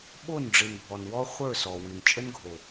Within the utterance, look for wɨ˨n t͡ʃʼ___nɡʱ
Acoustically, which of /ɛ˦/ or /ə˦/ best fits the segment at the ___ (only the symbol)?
ə˦